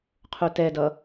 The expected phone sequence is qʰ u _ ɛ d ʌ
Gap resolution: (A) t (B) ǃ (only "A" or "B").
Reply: A